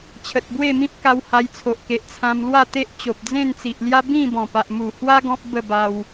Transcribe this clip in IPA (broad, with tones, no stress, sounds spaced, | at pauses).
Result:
t͡ɕʰ ə˨ t̚ b w e˥˧ m ĩ˦ p̚ k a˧ w h a˧ j t͡sʰ o˨ ʔ k e˨ ʔ t͡sʰ ã˧ m l w a˥˧ t̪ e˦ ʔ t͡ɕ o˨ p̚ d͡z ẽ˥˧ n t͡s i˨ ʔ l j a˦ b ĩ˥˧ b ɔ̃˨˩ p a˨ ʔ m u˨˩ h w a˦ ɡ ɔ̃˦ p̚ b ə˥˧ b a˧ w